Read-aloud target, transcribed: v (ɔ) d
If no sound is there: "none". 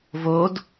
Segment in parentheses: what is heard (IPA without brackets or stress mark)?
o